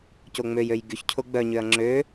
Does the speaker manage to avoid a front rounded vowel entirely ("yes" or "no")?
no